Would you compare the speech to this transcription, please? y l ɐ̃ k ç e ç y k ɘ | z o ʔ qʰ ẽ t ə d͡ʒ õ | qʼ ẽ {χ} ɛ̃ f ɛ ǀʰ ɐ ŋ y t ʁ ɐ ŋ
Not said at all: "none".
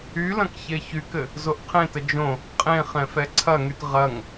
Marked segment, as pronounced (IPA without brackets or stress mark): χ